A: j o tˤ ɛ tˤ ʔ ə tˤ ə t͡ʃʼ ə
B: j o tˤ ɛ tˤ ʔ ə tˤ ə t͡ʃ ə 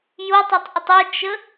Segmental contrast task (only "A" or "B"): B